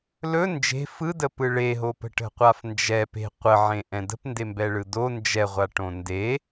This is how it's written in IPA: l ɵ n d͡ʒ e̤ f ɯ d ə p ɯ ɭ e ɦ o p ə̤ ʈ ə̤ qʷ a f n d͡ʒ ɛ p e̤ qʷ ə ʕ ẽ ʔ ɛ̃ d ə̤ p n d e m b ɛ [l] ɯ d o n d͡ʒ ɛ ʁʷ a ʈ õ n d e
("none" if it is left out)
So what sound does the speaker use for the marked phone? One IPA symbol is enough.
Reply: ɭ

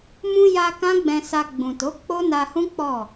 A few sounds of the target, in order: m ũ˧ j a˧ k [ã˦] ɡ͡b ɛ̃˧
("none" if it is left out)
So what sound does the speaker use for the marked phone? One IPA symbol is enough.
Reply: ã˦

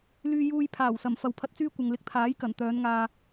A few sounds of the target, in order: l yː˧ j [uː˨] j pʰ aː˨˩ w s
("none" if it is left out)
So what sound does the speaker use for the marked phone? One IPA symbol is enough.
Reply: uː˧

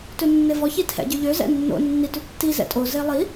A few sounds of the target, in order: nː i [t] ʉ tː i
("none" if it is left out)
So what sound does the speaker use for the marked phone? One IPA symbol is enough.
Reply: t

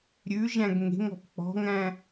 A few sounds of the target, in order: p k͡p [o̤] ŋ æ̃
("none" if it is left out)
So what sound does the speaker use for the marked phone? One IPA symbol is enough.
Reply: ɔ̤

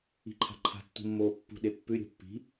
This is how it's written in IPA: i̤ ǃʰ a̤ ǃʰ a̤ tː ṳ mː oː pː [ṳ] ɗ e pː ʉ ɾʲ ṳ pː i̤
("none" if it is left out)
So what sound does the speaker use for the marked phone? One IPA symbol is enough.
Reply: ṳ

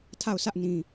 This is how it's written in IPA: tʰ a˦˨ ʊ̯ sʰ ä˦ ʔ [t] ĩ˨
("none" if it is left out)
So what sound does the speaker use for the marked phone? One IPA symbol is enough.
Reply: n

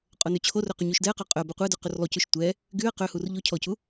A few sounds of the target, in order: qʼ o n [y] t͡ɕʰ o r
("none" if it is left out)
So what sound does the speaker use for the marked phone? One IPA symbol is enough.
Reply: y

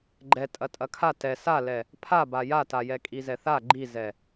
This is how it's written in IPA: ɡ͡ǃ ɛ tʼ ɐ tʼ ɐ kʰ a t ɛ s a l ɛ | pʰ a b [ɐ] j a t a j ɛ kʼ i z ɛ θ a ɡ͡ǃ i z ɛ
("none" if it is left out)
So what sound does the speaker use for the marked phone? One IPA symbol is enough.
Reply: a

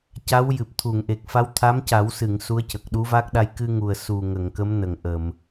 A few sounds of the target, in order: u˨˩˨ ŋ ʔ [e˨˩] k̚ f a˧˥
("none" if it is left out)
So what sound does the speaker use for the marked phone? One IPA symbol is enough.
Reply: e˨˩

